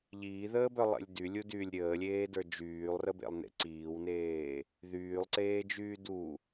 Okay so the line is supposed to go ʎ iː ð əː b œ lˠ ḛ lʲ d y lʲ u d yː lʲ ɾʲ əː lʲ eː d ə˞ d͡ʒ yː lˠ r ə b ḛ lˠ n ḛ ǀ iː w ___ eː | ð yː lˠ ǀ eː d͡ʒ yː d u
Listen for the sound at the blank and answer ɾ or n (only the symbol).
n